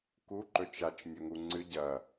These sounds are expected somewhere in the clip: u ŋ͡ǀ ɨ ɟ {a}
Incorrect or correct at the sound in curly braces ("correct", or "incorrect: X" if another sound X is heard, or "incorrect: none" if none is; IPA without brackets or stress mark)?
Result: incorrect: ɐ